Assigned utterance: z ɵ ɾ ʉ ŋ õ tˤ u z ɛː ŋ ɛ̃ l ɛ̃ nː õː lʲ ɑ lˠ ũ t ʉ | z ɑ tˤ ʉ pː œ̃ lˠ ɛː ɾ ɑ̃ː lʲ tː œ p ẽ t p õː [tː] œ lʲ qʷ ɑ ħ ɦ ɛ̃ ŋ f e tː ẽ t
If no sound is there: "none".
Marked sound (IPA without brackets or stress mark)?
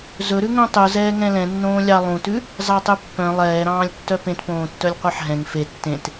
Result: tː